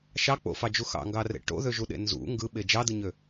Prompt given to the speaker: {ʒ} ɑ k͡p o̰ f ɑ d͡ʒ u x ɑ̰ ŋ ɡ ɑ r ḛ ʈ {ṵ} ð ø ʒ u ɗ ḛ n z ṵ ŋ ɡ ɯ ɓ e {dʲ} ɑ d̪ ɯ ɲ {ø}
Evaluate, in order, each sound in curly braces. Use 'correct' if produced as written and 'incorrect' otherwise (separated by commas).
incorrect, incorrect, incorrect, correct